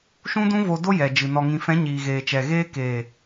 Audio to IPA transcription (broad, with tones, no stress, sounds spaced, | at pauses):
ʃ ũ˦ d ũ˦ v o˧ d o˦ j ɛ˨ d͡ʒ ɨ˨ n ɔ˨ ŋ ĩ˨ f ɛ̃˨˦ ɲ iː˨ ɣ eː˨ t͡ʃ ɛ˨ ɣ eː˧ k eː˨